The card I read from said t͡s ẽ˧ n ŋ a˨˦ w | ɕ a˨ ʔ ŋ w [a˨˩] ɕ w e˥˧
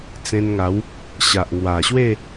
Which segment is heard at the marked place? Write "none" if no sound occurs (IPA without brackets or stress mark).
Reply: a˨˩